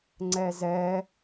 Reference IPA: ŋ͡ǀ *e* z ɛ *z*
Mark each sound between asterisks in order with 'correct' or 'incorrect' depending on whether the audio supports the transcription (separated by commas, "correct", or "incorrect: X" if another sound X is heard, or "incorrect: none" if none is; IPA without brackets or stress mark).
incorrect: ɛ, incorrect: none